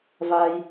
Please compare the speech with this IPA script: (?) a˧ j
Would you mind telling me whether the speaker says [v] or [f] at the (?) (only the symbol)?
v